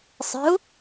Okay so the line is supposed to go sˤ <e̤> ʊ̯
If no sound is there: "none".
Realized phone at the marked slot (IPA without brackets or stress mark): i̤